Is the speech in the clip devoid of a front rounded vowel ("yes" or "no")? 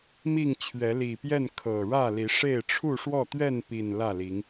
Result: yes